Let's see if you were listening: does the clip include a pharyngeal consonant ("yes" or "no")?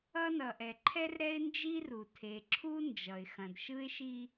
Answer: no